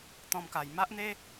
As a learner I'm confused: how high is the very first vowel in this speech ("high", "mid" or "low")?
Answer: mid